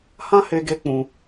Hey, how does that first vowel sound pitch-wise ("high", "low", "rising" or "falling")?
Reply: high